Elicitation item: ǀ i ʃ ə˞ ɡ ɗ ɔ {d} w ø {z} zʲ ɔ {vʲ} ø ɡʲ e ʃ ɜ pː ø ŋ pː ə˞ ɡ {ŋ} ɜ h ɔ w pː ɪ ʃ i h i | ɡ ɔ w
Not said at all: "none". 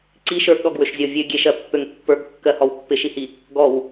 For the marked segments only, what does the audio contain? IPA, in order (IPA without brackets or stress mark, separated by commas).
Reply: ɡ, ʃ, vʲ, kː